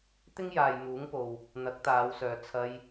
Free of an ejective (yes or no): yes